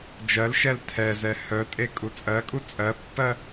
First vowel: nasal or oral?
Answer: oral